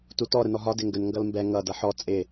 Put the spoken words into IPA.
tutɔ ɾənɔɦɒ dɪŋɡən ŋɡʌlmbɛ ŋʌd ʌħɔ t͡sʼɪ

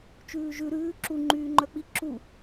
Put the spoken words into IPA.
t͡ʃʉːʒʉ ɾʉː ǁu ŋ͡ǃyːŋ͡ǃœk͡pi ǁu

